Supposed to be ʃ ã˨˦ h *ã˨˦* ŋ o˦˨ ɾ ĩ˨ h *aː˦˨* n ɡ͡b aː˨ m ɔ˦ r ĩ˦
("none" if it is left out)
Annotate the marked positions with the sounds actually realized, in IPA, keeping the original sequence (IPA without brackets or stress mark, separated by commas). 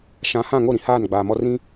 ã˦˨, aː˦˨